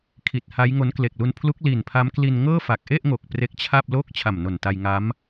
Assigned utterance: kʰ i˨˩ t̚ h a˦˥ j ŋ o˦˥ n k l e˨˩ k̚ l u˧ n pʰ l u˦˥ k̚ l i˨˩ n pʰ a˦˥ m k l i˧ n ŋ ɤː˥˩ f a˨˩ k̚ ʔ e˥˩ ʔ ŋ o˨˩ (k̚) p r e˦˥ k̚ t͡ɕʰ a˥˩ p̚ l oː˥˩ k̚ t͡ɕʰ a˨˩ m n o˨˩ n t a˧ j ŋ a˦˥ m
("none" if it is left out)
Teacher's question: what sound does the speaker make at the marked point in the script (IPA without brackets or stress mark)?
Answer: k̚